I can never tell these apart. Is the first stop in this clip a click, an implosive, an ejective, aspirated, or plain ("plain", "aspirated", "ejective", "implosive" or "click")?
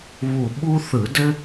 implosive